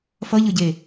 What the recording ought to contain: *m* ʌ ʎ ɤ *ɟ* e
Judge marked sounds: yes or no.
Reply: no, yes

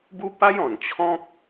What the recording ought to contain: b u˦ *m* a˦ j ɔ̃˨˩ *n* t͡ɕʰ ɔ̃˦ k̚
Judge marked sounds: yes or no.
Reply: no, yes

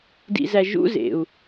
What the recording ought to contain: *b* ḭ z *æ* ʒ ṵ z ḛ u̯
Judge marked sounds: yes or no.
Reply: no, yes

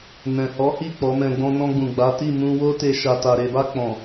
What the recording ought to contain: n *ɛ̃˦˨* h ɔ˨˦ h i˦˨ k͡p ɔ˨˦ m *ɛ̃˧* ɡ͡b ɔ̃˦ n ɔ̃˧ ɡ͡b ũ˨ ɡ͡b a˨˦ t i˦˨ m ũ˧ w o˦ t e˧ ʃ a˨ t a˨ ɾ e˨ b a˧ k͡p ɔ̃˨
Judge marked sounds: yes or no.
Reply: no, yes

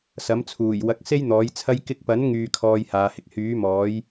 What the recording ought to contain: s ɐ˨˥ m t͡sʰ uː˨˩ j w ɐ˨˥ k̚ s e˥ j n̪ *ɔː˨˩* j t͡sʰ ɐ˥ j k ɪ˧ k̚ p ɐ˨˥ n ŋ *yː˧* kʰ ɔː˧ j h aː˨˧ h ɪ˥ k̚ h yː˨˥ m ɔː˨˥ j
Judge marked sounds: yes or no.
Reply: no, no

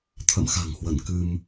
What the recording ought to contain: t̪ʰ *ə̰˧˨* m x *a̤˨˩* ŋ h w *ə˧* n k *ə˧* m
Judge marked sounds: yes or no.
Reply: yes, yes, no, no

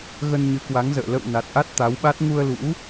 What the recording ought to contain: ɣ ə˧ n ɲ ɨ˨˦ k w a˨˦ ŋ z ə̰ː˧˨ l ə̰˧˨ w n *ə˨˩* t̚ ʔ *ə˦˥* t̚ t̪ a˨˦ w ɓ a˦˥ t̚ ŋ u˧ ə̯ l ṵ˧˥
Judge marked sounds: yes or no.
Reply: no, no

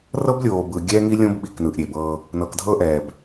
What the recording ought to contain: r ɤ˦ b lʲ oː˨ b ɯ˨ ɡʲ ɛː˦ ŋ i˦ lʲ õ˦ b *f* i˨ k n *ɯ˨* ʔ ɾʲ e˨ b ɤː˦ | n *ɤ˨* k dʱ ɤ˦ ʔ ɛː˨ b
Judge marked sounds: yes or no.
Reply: no, yes, yes

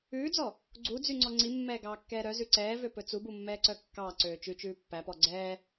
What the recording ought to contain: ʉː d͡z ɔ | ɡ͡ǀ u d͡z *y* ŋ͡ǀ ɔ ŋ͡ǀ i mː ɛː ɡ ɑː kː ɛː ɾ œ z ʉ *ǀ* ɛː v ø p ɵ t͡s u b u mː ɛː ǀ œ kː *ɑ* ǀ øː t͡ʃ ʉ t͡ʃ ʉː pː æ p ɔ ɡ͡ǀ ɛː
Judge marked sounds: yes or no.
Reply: yes, yes, no

